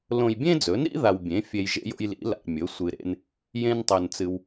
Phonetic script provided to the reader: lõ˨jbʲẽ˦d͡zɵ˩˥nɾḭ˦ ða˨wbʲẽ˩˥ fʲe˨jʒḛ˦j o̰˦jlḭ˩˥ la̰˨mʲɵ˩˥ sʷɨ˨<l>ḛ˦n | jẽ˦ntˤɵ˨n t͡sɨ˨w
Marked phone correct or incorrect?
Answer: incorrect